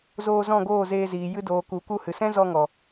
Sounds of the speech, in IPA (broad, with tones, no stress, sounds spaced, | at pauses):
z oː˧ z ɔ̃˦˨ ɡ oː˦˨ z eː˧ z iː˨ j ɨ˧ d oː˨ k u˨˦ k u˧ h ɨ˨ s ɛ̃˦ z ɔ˧ ŋ ɔ˨